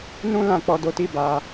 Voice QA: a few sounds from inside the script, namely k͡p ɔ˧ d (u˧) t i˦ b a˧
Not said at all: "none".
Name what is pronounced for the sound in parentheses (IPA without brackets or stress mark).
o˧